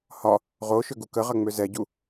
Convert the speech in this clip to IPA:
hɒ | ʁoʃøɡu kəʁɐŋ͡mø zɛɟu

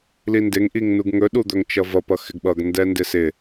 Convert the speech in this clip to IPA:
lindɪŋ ʔiŋnuɡŋɵ ɗud̪ɵŋt͡ʃʌvʌ pʌxɪɡɓʌɡ ndɛndɪsɪ

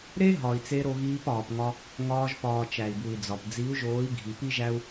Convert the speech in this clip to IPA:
ɾe˦ɦɒ˨i̯t͡se˧ ɾo˧ɣiː˧pɒː˨pŋɒ˧ | ŋɒː˧ʒpɒː˨ t͡ʃæ˨i̯bu˨i̯d͡zɒ˨p d͡zi˨˦u̯ʒoː˨˦i̯ ɡʱi˧ pi˦ʒæ˦u̯

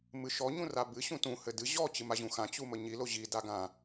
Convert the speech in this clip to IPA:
mɨʃɔ ɲũrabɨ ɕũtũ hɘdɨ ʑɔ t͡ɕɨmaʑũxã t͡ɕuməɲi loʑi daɡã

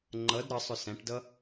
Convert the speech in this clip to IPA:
ŋ͡ǃʌd ɾʌsˤʊ sæ̃ʈdʌ

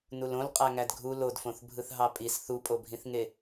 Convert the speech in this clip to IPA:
nulõlqʼæ ŋædɡʱu lodfõθbʱɯθ ɦɑpʼis θupʼobʱĩθŋe

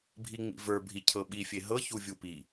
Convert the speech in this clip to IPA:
bʱiŋ͡mḭvə˞ bʱicʰɤɓi fʲeɦɤ çuvʲupi

